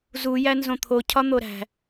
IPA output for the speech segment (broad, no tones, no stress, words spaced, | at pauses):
zujæ nzõt̪ʰocʰɒ n̪oɾæ̤